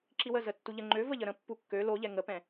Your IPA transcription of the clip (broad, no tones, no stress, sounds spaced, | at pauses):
ǁ i w ə z ə tː u ʎ ə ŋ͡ǃ ø v ə ʎ ə ɾ ə̃ pː u kː ø l o ʎ ɛ ŋ ə p ɛ̃